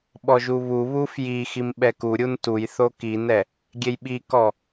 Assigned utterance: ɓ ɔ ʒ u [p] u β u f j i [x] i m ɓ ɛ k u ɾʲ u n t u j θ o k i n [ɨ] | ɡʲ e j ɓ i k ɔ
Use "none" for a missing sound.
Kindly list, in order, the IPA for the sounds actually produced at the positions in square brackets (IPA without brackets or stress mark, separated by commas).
β, x, ɛ